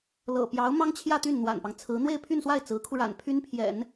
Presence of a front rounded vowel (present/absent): present